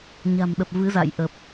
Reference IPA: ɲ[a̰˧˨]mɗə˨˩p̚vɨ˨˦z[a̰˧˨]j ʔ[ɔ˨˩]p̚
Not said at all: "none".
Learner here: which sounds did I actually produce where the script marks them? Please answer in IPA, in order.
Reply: a̤˨˩, a̰˧˨, ə˨˩

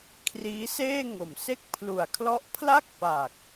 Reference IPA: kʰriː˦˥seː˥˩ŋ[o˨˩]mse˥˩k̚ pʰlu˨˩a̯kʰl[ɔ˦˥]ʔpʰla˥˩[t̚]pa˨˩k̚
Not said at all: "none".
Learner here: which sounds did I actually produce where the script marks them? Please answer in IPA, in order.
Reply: o˨˩, ɔ˦˥, k̚

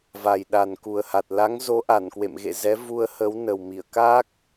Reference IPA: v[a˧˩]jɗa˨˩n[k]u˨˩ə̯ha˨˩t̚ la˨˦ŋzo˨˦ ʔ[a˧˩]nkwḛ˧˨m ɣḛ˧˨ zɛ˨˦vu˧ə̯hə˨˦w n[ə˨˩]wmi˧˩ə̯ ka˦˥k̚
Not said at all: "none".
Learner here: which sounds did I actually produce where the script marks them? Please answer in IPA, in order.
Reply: a˨˩, k, a˧˩, ə˨˩

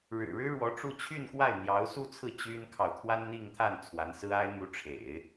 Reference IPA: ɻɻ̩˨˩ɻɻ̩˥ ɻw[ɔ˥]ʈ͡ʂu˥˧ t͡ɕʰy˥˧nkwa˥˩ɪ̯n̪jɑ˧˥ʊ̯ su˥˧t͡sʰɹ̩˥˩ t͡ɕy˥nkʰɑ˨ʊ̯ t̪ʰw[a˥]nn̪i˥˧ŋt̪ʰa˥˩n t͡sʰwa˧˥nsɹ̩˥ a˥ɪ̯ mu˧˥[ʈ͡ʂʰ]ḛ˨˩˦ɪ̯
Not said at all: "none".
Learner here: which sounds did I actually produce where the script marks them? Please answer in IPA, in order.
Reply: ɔ˧˥, a˥, ʈ͡ʂʰ

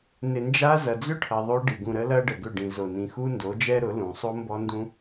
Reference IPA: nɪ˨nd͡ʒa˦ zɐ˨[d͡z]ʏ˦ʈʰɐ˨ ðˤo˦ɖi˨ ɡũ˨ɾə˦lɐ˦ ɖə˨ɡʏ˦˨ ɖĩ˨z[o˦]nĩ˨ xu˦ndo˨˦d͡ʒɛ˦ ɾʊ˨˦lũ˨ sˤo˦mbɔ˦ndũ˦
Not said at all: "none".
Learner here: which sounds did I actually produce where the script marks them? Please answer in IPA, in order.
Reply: d͡z, o˨

